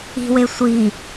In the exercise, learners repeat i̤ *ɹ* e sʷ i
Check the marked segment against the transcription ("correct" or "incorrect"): incorrect